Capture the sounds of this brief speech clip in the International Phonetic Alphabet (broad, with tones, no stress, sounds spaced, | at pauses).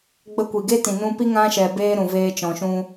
ɡ͡b ə˧ kʷ i˨ ɡ e˦ t ĩ˨ n ũ˧ p i˦ ŋ ã˧ ʃ ɛ˨ b eː˧ ɾ ũ˨ v eː˧ t͡ʃ ɔ̃˨ ʃ ũ˦